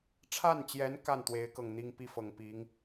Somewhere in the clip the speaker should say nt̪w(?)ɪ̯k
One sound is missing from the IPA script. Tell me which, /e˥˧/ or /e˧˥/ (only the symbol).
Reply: e˧˥